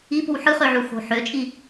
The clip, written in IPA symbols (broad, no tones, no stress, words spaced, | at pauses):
ip o̤wħɯχø ʕuxo̤ħøt͡ʃʼi